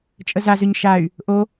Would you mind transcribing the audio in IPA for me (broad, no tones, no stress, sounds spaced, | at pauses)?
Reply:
t͡ʃʼ ə z a z ʏ ɲ ʃ a y̯ | ʔ o